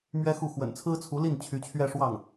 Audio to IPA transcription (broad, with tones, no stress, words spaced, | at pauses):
mɥɛ˥xu˥˩ xwə̰˨˩nt͡sʰɹ̩˥t͡sʰu˧˥li˥˩n t͡ɕʰy˧˥t͡ɕʰɥɛ˥˧ʂwɑ˥˩ŋ